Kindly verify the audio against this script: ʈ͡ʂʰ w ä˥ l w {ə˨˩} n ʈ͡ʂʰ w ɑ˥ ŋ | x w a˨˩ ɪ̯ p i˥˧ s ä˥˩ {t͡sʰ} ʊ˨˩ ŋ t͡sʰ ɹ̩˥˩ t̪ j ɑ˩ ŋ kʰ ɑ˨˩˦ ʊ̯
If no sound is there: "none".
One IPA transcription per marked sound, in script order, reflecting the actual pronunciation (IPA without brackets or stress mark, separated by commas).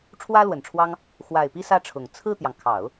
ə˨˩, ʈ͡ʂʰ